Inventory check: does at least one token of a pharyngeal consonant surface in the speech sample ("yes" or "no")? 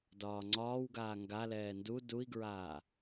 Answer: no